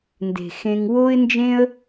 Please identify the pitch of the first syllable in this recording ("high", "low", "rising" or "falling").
low